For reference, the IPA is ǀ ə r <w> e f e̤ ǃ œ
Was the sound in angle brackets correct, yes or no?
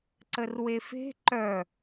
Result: yes